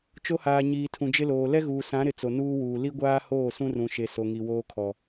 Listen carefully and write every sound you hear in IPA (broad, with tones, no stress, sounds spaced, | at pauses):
t͡ʃ o˦ h aː˨ ɲ iː˨ tʰ ũ˨ d͡ʒ ɪ˦ l oː˨ l ɛ˦ ɣ uː˨ s ã˨˦ ɾ ɪ˨ t͡s o˨ n uː˦ w uː˨ l i˦ ɡʷ aː˦ h oː˦˨ s ũ˦ r ũ˨ ʃ e˨ s o˨ ŋ i˨ w oː˦ kʰ ɔ˨